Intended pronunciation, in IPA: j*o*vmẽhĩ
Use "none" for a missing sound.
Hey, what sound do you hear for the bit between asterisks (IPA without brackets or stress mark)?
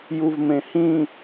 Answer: u